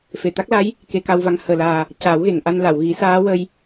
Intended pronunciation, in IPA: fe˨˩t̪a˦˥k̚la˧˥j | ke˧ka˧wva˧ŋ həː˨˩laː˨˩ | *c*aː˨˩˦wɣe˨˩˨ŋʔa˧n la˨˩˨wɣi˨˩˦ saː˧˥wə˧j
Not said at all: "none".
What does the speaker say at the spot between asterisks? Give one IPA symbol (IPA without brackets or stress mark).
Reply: c